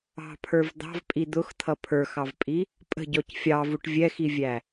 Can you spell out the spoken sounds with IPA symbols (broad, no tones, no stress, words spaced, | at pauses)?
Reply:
ɑ̤pʰə˞v d̪ɑ̤vpʼi d̪ʊxt̪ʰʌ pʰə˞xɑvpʼi | pʼə̤ɟɔc fʲɑvuʈ vʲɛxivʲæ